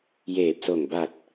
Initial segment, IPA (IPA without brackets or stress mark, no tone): j